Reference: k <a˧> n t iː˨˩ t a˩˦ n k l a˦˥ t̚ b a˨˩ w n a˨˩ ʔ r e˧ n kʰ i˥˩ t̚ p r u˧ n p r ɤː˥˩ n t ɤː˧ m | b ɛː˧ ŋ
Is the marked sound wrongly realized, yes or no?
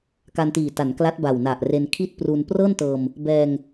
no